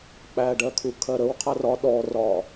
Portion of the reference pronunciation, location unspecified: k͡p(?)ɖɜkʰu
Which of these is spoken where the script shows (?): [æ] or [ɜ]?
æ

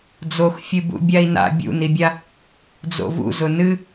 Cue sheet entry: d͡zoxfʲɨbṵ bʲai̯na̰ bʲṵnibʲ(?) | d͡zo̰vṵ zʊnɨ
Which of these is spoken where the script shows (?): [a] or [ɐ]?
a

